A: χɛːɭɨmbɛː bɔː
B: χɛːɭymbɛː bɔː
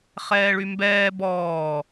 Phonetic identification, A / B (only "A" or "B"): B